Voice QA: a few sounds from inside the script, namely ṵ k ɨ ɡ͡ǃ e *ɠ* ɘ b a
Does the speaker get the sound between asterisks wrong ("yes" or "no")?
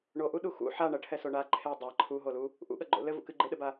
yes